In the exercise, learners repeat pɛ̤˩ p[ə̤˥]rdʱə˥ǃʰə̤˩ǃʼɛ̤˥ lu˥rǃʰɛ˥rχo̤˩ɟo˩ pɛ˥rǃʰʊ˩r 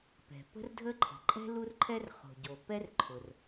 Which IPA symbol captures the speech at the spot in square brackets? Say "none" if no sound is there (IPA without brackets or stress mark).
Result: ə̤˥